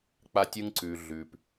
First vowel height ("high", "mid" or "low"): low